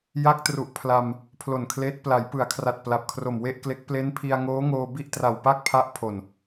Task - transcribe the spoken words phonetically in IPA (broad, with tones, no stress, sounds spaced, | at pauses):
j a˦˥ k̚ t r u˨˩ ʔ pʰ l a˧ m | pʰ l o˨˩ n kʰ l eː˦˥ t̚ p l a˩˦ j p ɯ˩˦ a̯ kʰ r a˨˩ t̚ p l a˨˩ p̚ kʰ r o˨˩ m w e˥˩ ʔ k l e˦˥ k̚ p l e˦˥ n pʰ i˧ a̯ ŋ oː˦˥ ŋ oː˧ b i˥˩ ʔ t r a˨˩ w p a˥˩ k̚ pʰ a˦˥ ʔ pʰ o˨˩ n